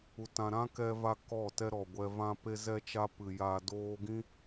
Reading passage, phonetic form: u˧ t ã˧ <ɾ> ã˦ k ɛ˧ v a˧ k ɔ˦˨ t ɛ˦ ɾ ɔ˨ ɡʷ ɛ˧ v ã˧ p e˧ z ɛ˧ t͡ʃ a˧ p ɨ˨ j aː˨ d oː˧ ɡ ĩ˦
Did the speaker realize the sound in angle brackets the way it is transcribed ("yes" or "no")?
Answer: yes